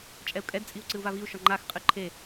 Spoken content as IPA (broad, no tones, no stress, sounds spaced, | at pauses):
t͡ʃʼ ɛ u̯ kʼ ɛ d t͡sʼ i u̯ ǀ ɨ u̯ v a v i u̯ ʃ ɔ ŋ͡ǃ a x qʼ ɨ ǃʰ e